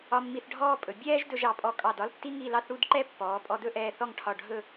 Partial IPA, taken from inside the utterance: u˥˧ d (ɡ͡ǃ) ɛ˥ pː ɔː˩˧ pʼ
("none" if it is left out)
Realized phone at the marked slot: ǃ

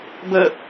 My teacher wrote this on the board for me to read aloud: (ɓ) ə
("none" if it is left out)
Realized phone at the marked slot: b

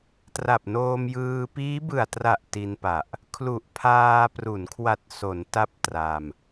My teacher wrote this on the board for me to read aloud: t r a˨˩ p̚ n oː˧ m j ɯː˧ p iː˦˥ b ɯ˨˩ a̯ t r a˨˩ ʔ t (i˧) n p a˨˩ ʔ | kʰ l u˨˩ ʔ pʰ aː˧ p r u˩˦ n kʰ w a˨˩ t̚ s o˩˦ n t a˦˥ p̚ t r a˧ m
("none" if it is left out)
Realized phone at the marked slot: i˧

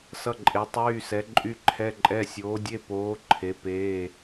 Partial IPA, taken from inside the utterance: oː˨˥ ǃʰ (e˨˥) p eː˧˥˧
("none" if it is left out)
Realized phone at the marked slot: e˨˥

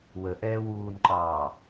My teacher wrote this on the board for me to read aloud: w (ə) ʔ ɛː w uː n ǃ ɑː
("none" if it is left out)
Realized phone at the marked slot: ə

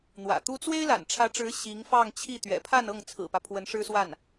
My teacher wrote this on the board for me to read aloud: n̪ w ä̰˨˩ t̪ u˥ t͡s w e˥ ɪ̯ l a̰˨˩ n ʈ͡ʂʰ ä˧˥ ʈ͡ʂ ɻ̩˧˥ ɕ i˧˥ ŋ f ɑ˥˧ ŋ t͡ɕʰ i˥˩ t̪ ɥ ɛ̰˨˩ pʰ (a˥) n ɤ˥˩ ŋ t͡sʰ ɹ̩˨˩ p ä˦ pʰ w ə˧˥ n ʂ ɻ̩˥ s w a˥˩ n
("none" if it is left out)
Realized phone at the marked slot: a˥˧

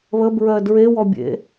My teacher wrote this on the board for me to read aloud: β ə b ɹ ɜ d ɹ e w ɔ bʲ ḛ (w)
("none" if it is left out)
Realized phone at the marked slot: none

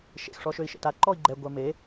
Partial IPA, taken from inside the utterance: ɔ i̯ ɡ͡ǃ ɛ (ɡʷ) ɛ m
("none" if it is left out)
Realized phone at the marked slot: ɡʷ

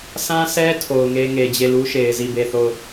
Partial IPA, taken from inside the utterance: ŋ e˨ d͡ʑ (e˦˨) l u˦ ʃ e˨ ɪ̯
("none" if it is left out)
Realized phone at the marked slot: e˦˨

